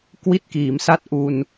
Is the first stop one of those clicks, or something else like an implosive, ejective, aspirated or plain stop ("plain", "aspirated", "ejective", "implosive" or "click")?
plain